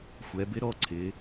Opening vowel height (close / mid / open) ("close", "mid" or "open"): mid